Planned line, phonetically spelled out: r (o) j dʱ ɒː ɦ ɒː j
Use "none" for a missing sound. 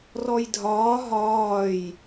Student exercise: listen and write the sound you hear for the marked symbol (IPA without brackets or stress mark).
ɔ